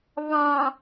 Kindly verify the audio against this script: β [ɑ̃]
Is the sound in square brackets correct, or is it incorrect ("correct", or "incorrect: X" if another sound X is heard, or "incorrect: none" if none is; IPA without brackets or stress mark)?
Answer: correct